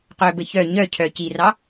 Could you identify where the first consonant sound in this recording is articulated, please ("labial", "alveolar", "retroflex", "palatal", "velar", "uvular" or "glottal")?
uvular